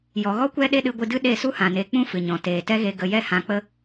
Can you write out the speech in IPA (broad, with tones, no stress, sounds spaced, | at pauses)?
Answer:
j ɔ˨ ɣ ɔ˦ kʷ ɛ˦ ɗ e˦ ɗ ɨ˧ ɡʷ ɨ˧ d ɨ˦ ɗ e˦˨ s u˦ h ã˨ n e˨˦ k͡p ũ˦ f ɨ˨ ɲ ɔ̃˨ t eː˨ t ɛ˦ ɣ e˧ ɡ ə˧ j ɛ˦ h ã˧ k͡p ə˦